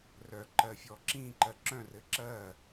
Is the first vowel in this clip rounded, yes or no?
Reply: yes